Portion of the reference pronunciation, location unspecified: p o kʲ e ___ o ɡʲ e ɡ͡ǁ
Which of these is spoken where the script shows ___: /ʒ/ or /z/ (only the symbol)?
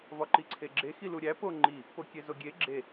z